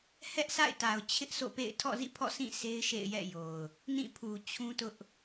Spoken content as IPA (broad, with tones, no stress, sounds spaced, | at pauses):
h ɛ˦ ʔ sʰ a̰˦˨ ɪ̯ t a˨ ʊ̯ t͡ɕʰ ɪ˦ ʔ sʰ o̰˦˨ p ḛ˦˨ ɪ̯ tʰ ɔ̰˦˨ z ḭ˦˨ pʰ ɔ̰˦˨ sʰ ĩ˦˨ sʰ e˦ ɪ̯ ʃ ḛ˦˨ ɪ̯ j ɛ̰˦˨ j o˨ ʊ̯ | n ĩ˦˨ pʰ u˨ t͡ɕʰ ũ˦ t ʊ˦ ʔ